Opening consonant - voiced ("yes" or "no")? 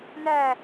yes